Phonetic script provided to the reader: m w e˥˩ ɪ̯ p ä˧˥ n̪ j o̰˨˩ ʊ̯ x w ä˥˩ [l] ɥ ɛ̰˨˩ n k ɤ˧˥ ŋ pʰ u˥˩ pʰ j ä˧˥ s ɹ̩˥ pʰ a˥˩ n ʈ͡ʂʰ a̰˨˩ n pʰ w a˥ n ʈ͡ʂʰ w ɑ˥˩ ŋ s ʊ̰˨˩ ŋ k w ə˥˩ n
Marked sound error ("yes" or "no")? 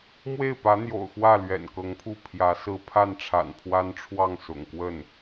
no